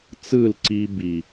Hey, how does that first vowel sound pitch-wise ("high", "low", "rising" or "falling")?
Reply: falling